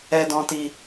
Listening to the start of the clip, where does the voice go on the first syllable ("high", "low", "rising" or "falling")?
low